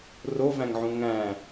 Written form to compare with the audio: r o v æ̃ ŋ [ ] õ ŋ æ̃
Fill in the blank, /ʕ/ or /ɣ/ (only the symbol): ʕ